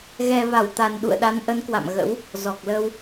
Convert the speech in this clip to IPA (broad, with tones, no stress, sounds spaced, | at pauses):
ɣ ɛ˨˩ v a˧˩ w t̪ a˨˩ n ɗ ṵ˧˨ ə̯ ɗ a˨˦ n ʔ ə˨˦ n k w a̰˧˨ m ɣ ə̰˧˥ w | z ɔ˨˩ k̚ l ə˧ w